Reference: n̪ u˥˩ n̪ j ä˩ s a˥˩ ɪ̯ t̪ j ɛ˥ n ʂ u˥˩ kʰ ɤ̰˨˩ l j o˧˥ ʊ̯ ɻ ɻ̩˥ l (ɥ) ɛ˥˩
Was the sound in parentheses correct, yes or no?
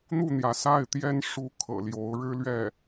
yes